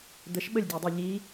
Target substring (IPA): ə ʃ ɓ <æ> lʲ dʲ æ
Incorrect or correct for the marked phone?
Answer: incorrect: ə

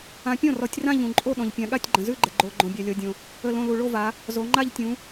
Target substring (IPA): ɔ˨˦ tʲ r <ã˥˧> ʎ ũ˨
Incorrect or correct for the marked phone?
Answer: correct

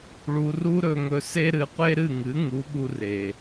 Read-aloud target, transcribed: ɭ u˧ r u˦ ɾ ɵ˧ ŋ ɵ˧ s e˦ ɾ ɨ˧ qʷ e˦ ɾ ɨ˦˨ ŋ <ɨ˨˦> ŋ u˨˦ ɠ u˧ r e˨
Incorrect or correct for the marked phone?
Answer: correct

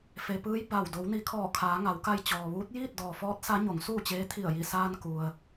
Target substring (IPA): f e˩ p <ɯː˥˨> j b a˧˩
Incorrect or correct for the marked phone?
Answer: incorrect: ɯː˧˥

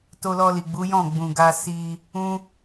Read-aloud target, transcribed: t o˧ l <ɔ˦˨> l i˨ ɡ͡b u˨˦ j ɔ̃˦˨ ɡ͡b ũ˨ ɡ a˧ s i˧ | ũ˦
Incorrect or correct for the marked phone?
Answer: incorrect: ɔ˧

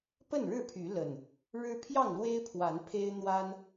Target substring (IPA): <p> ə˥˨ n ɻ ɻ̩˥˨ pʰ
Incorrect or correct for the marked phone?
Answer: correct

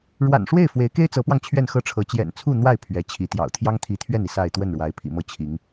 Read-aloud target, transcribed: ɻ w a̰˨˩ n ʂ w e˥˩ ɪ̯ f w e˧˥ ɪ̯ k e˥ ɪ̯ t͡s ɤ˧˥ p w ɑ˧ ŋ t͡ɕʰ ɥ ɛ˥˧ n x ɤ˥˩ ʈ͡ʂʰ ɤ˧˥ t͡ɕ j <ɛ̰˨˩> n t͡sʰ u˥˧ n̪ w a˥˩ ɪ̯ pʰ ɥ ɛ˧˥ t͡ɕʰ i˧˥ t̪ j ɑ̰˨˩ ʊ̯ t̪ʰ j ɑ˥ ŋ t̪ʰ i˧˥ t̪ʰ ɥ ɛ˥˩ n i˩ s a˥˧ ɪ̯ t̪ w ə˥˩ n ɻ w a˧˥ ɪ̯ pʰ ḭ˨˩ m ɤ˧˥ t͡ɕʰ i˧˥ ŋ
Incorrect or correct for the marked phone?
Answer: correct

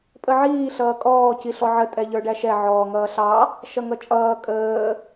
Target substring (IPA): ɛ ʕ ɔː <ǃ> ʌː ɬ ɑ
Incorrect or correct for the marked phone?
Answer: incorrect: ŋ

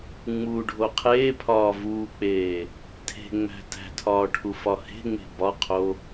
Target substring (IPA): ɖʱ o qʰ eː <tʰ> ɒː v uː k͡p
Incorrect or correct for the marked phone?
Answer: incorrect: pʰ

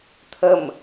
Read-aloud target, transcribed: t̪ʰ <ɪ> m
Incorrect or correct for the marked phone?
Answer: incorrect: ə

